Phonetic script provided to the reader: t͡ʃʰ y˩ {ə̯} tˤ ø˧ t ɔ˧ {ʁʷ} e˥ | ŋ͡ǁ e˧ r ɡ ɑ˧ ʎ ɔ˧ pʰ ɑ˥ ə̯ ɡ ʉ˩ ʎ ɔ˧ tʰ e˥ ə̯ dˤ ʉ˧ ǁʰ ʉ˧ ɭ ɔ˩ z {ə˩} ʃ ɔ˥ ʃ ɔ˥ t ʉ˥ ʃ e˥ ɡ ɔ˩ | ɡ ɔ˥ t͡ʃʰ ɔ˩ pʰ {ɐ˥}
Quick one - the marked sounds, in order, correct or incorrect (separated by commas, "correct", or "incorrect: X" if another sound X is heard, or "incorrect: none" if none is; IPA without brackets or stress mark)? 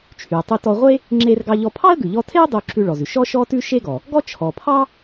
correct, correct, incorrect: ʉ˩, incorrect: ɑ˥